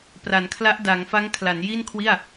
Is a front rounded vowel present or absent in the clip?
absent